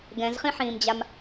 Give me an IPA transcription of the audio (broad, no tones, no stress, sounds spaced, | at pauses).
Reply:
ɡ ɛ̃ z χ ĩ ħ ĩː m d͡ʑ a m